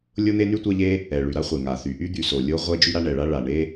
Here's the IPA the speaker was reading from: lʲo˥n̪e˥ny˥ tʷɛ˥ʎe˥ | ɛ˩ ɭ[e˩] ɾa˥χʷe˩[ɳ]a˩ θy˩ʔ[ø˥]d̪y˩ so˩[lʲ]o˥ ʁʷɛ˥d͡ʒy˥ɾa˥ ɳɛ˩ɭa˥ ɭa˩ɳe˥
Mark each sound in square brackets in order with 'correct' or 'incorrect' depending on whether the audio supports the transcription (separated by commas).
incorrect, incorrect, incorrect, correct